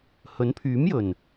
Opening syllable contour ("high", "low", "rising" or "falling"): rising